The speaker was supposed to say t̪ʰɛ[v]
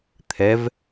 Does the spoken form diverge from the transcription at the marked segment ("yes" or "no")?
no